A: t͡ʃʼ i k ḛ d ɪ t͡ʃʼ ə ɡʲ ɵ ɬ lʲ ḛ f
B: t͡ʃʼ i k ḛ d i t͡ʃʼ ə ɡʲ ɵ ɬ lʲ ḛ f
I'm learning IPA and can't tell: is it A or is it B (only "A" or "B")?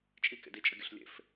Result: B